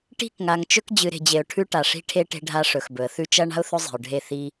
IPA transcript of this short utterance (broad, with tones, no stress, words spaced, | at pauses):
ʈi̤˦˨kŋa˨ŋt͡ʃɵ˦k d͡ʑɨ˨ɾe̤˨d͡ʑe˨ʊ̯ ʈʰʉ˦ʈa˨ʂi̤˦ʈʰe˦ ʈe̤˦ɖʱa˦ʂɵ˨xbɵ˨ə̯ θʉ˦t͡ʃɐ˦ ɳa̤˦ʊ̯θɵ˦zˤe̤˨ʊ̯ɖʱe˦˨ θi˦